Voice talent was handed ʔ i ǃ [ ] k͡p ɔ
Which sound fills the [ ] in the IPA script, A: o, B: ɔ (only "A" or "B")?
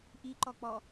B